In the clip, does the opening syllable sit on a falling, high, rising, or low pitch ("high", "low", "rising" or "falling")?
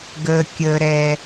low